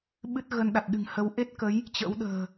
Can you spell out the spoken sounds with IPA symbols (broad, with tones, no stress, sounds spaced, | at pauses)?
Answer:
ɓ ɨ˦˥ t̚ ɣ ə˧ n ɗ a˨˩ t̚ ɗ ɨ̤˨˩ ŋ h ə˨˦ w ʔ e˦˥ t̚ k ə˨˦ j | t͡ɕ ə̰˧˥ w ɗ ə̤ː˨˩